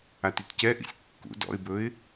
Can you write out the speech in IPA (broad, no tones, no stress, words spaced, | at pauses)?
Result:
atytcɛʔḭsʲ kːṵ dɔ̰ɪ̯bɵɪ̯